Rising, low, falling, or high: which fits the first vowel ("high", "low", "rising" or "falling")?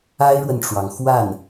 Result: high